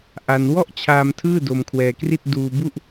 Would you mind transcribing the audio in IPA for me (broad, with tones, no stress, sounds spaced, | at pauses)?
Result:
ʔ a˧ n w ɔ˥˩ ʔ t͡ɕʰ aː˧ m tʰ ɯː˥˩ d o˧ m kʰ w ɛː˧ k r i˥˩ t̚ d uː˧ b u˥˩ ʔ